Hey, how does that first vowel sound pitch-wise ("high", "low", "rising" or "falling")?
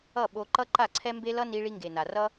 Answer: falling